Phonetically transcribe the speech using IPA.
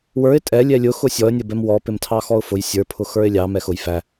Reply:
wə˞ɪ̯ tʼɛlʲɛ lʲʊxʊ sʲɔə̯nʲəbɛm wɔpɪmtʰɑ xɔʊ̯fʊj sʲə˞pʰʊ xə˞ɪ̯lʲɑ mɛxʊj fæ

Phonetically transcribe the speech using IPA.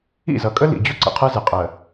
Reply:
ḭ˦˨zʌ˨kʼə˦ lḭ˨d͡ʑʊ˦ ǀə̰˨qʰɜ˦zɪ˨ qʼɜ˨

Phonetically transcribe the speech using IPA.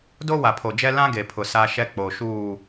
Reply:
do˦wa˨pʰo˨d͡ʒɛ˦ lã˦ɡe˨pʰʊ˨ sa˦ʃɛ˦k͡po˨ ʃuː˨

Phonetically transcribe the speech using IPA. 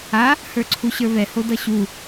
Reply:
a | hə˞ǀʰuɕə˞βɛ hodʌɕu

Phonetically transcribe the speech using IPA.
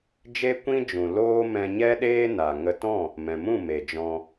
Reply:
d͡ʒe˦ kʷĩ˦ d͡ʒũ˨ loː˦ mɛ̃˧ɲɛ˦ ɗeː˦ na˨ ŋə˧tɔ̃˦˨ | mɛ̃˨mũ˦˨ me˨d͡ʒɔ̃˧

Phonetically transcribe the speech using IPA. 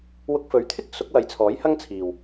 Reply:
wʊ˧k̚fɵ˨˥ɥt̪ʰɪ˥k̚ sʊ˨˥k̚wɐ˨˧jt͡sʰɔː˨˥j hɐ˥ŋt͡sʰiː˨w

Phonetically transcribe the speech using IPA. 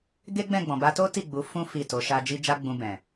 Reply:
ɡe˦ɡ͡bɛ̃˦˨ɡ͡bɔ̃˨ ba˧to˦ ti˦˨ɡ͡bu˨˦ fũ˦ fi˦˨to˨˦ʃa˦ d͡ʒi˦ d͡ʒa˦ɡ͡bũ˧ bɛ̃˨

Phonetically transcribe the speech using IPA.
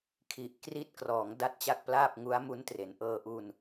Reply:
kʰi˨˩ʔ kri˦˥t̚krɔː˩˦ŋ da˦˥t̚t͡ɕa˥˩k̚plaː˥˩p̚ ŋu˦˥a̯mu˦˥ntre˩˦n ʔɤː˧ʔu˧n

